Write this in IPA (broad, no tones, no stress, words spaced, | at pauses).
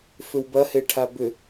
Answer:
fʏwbɐhe ʈʰabʏ